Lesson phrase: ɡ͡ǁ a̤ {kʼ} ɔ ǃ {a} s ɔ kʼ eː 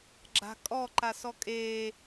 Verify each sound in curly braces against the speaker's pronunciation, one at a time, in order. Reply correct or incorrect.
correct, correct

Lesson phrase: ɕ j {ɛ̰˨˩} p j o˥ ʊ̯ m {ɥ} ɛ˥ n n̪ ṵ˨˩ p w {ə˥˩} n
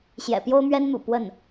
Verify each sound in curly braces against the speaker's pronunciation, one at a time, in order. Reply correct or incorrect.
correct, correct, correct

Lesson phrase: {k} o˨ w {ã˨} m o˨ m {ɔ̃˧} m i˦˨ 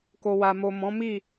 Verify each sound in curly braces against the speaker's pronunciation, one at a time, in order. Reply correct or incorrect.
correct, incorrect: a˨, incorrect: ɔ̃˨˦

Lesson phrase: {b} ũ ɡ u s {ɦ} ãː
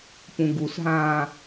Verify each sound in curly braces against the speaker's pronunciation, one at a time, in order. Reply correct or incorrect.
incorrect: p, correct

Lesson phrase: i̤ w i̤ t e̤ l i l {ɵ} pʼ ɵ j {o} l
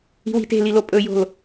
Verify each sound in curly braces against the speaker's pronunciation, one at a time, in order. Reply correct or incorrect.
incorrect: o, incorrect: o̤

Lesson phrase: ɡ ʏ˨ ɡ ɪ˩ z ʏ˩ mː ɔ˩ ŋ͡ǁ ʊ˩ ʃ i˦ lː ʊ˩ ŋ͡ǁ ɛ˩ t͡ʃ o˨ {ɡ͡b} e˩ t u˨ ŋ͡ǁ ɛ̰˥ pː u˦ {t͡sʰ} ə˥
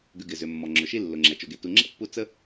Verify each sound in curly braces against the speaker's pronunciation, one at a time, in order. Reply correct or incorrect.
incorrect: ɡ, incorrect: t͡s

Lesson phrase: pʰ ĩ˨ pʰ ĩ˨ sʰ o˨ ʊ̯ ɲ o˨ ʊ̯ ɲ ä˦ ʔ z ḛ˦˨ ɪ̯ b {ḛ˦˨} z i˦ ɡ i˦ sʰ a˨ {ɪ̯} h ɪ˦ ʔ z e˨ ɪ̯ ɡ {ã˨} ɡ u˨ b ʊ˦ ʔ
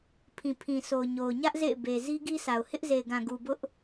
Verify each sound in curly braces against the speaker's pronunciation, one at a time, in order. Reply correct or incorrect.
incorrect: e˨, incorrect: ʊ̯, correct

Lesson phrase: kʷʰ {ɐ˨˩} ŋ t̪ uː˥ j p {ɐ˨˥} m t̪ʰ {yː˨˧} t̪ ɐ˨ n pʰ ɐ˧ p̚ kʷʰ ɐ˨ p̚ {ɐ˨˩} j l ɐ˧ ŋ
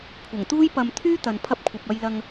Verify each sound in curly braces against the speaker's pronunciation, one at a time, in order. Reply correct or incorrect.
correct, incorrect: ɐ˧, incorrect: yː˥, incorrect: ɐ˧

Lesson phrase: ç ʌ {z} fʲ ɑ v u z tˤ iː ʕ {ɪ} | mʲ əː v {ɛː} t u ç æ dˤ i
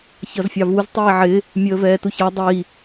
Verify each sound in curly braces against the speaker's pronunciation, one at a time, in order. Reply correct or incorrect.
correct, correct, correct

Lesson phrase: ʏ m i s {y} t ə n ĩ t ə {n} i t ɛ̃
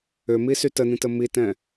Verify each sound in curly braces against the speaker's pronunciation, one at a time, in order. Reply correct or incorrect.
correct, incorrect: m

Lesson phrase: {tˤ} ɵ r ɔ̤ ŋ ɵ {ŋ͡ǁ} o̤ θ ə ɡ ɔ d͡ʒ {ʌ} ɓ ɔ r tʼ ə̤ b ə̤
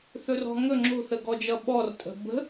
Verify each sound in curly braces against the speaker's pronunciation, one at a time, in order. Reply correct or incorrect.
incorrect: θ, correct, correct

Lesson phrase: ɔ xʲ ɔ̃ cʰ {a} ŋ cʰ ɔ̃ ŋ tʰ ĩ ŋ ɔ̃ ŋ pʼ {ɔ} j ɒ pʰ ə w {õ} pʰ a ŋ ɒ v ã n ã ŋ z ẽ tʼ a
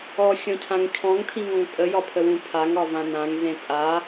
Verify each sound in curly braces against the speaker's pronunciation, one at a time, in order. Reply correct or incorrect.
incorrect: ã, incorrect: ə, incorrect: ũ

